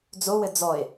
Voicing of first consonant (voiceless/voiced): voiced